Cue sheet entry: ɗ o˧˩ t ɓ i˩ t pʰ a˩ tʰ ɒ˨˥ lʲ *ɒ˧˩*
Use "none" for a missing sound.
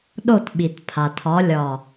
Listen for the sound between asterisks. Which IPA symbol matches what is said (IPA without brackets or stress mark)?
ɒ˧˩